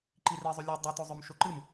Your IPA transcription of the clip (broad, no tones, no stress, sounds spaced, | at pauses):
ǃ i r i zˤ y lʲ ʉ dˤ ɨ t o zˤ ɵ m ʃ o ǃ ɨ m